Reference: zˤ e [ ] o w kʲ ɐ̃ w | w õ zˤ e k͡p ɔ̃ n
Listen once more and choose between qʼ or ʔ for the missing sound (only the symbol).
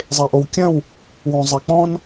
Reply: ʔ